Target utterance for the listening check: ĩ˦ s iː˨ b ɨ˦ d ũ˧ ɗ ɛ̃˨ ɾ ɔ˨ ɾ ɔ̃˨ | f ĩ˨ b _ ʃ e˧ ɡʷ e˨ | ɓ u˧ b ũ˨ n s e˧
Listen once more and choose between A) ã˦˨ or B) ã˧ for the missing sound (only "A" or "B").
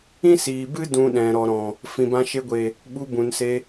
B